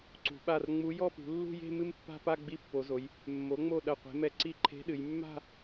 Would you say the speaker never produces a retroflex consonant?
yes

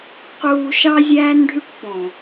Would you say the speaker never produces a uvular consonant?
no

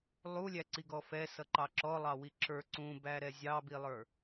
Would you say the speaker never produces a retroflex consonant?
yes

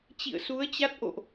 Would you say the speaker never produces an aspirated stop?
yes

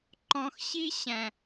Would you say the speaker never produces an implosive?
yes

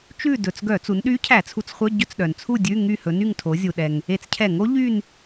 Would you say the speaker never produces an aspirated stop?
no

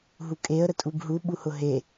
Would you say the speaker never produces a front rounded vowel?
yes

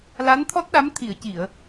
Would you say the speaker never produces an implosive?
no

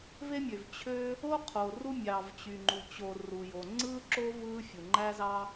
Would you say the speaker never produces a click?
no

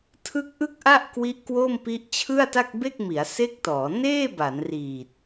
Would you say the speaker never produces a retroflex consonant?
yes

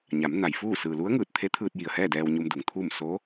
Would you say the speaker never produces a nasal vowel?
yes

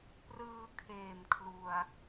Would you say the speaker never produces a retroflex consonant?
yes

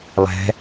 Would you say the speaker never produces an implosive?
yes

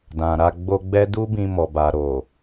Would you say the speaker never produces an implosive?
yes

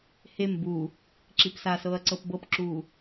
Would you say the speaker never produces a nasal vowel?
yes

